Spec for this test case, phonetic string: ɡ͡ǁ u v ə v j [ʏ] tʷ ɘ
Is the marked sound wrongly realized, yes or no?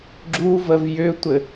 no